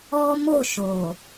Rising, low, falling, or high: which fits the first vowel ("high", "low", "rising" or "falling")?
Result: high